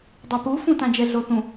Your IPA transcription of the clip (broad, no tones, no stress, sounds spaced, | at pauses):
dˤ e p u f ũ t ã d͡ʒ ɛ ɮ o θ ũ